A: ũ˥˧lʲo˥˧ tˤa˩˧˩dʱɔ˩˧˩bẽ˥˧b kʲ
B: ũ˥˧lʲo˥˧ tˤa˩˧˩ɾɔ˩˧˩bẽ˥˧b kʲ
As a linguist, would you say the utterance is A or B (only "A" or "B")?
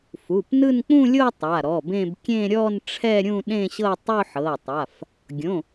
B